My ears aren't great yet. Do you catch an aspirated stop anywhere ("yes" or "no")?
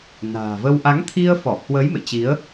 yes